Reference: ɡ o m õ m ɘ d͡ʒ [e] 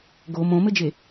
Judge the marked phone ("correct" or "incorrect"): correct